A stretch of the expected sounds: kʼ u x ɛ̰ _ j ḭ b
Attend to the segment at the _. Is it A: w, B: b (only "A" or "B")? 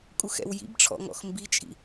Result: A